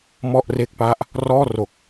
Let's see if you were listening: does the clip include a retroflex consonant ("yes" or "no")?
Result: no